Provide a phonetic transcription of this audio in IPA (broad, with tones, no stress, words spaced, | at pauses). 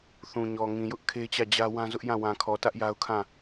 θũ˨ɲɔ˨ ŋĩ˨jʊ˦ʔ kʰe˦t͡ɕä˦˨d͡ʑä˦ wã˦zʊ˦ʔjã˦˨ wã˨kʰɔ˨tä˦ʔ ja˦ʊ̯kʰã˦˨